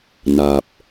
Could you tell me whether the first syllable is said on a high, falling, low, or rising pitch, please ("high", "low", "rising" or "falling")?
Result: low